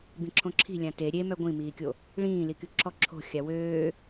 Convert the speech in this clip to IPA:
bĩǁʰõǁʰi̤ lʲãte ɾʲe mœɡʷĩmiːkʲo | ɭĩːliky ǁʰɔǁʰo̤ xʲawøː

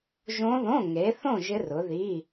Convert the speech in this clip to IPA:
ʒõ˦˥ðõ˧˥˧ ŋe˨˦θõ˥˧ ʒɪ˦˥rʊ˨˦ði˧˥˧

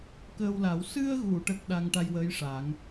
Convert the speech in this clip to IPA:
kəː˧wla˨˩˦w sɨ˧ə̯ɣu˨˩˨ʈə˨˩k̚ ɗa˧ŋʈa˧jwəː˧˥jʂaː˨˩˦ŋ

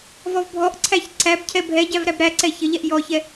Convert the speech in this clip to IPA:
vɔvbʱɔʔǀʰæç ǀæbcʰɛ bʱɛɟæv ɾæbɾæǀɛ çəʎɛʔ jɔçɛ

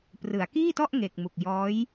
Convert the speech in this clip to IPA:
prɯ˩˦a̯kiː˥˩tɔ˥˩ʔ ŋe˨˩k̚ mu˨˩k̚jɔː˦˥j

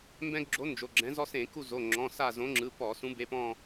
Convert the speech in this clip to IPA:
mbɛ̃˦ɡɡ͡ǁo˨˥ nd͡ʒo˩˧˩ɡ͡ǁɛ̃˨˥ zɔ˦sẽ˧˩˧ku˦˨ zo˩˧˩ ŋ͡ǁɔ̃˩˧˩sa˦˨zõ˨˥ ŋ͡ǁɯ˩˧˩pɔ˧˩˧ sũ˨˥ be˩˧˩pɔ̃˦˨

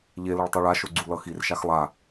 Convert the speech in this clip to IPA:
ʎelʌɭ tˤɛɭaʃo ɡ͡ǀulʌxirʃax lˠa

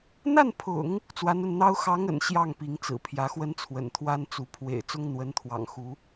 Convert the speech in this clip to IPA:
n̪a˥˩npʰʊ̰˨˩˦ŋ | t͡swa˧˥nə˥˩nn̪ɑ˥ʊ̯ xɑ˧˥ŋə̰˨˩n ɕjɑ˥˩ŋpi˧˥ŋ t͡sɹ̩˨˩pʰjä˧˥xwə˥nt͡sʰwə̰˨˩n t̪ʰwa˥nt͡su˧˥ pʰwḛ˨˩ɪ̯ t͡sʊ˥ŋn̪wə˧˥nt̪ʰwɑ̰˨˩ŋxu˧˥

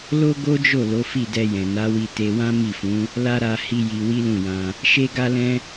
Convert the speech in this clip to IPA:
lo˦ɡo˦d͡ʒo˦˨ lo˨˦fi˦˨dɛ˧jɛ̃˨ na˨˦wi˧ te˧wã˦mi˦˨fũ˨˦ | la˦ɾa˧ hi˧ ji˧wi˦lũ˦˨jã˧ | ʃe˦ɡa˦lɛ̃˦

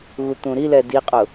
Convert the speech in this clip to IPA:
ɣut̪ũɾilɛ diqʼʊ

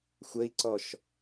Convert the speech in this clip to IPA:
xʷəi̯ǀɔʃ

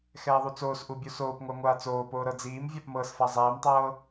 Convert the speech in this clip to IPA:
xɛːðˤut͡soːsʔu bʲusoːpŋʷa ŋʷaːt͡soːpoː ɾɤd͡ziːmvʲap mɤːsfazˤɛːmtˤɤː

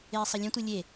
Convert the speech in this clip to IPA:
eːsˤʌlʲə̃tʷɨ lʲe

